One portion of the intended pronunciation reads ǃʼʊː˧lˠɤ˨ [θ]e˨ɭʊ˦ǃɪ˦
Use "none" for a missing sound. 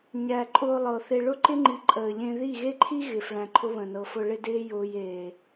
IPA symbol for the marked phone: θ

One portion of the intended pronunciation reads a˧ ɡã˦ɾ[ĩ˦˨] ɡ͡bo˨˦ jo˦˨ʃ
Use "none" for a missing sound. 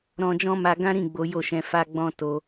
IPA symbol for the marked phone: ĩ˦˨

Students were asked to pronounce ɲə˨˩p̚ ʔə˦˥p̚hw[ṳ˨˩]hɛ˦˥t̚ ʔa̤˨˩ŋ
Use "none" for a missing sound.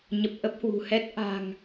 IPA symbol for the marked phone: ṳ˨˩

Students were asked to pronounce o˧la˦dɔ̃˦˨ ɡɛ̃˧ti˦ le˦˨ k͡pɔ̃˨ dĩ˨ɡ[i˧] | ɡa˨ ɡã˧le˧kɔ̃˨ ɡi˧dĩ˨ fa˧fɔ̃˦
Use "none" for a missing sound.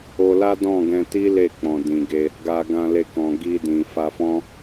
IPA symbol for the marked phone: e˧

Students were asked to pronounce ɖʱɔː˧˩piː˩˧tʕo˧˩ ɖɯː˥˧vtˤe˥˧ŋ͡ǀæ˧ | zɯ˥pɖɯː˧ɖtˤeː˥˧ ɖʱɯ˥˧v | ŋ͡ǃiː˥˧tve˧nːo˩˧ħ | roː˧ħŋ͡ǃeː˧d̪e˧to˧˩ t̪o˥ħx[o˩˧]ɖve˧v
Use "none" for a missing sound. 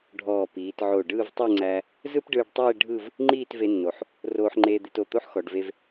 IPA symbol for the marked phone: ɔ˩˧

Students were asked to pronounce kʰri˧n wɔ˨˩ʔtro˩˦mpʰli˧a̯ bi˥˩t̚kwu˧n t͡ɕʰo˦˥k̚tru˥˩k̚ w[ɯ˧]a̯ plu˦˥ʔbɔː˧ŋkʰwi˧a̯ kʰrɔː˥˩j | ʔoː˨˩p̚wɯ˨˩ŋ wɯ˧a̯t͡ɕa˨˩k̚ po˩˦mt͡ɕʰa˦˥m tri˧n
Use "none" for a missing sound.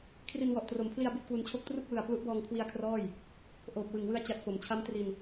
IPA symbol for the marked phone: ɯ˨˩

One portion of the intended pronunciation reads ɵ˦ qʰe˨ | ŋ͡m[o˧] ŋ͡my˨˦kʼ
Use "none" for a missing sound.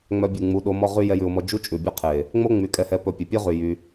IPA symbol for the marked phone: o˦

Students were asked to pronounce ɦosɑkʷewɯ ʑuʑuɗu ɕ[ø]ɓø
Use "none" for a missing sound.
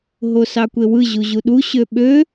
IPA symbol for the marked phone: ø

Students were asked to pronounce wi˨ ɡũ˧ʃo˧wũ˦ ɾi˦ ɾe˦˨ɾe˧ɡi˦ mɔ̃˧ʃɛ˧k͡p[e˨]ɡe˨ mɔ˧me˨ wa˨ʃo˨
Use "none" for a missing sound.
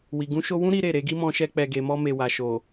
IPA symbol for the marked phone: ɛ˨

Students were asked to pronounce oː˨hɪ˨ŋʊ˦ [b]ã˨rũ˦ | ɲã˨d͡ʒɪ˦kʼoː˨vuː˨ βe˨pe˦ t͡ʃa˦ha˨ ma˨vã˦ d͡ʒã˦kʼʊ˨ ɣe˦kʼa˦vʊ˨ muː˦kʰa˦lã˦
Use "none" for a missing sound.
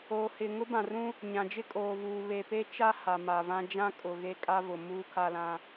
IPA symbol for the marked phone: b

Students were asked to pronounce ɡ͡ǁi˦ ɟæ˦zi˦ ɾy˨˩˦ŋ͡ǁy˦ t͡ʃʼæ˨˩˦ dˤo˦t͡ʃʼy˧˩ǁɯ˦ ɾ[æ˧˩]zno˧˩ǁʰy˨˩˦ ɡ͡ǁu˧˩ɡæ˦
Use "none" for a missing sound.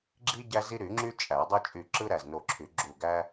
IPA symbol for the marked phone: æ˧˩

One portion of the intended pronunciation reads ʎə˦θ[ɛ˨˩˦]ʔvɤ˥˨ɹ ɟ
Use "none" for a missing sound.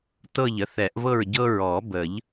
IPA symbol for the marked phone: ɛ˨˩˦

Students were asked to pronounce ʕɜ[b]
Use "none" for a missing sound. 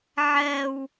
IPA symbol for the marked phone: w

